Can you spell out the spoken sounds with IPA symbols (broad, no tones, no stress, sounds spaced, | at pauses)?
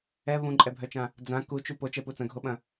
ɛ β ũ ǃʼ ɛ bʱ œ t͡ʃ ã | d͡z ã k u t͡ʃ u p o t͡ʃ ɛ p u t͡s ɐ̃ ɡʱ o ɓ ɐ̃